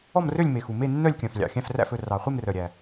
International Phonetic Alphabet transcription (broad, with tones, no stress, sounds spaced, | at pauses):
ɔ˥˨ m r ø˥˨ lʲ m e˨˩ x u˨˩ m e˥˨ nː œ˥˨ lʲ kʲ œ̃˨˩ f lʲ ɑ̰˨˩ xʲ æ̃˥˨ f r æ̰˥˨ f ɵ˥˨ r ɑ˨˩ χʷ e˥˨ m r œ˨˩ ɾʲ æ˨˩